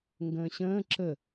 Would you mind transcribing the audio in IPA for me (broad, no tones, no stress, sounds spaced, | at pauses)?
ŋ ɡ ə̃ː ɕ ə̃ː ǁ ə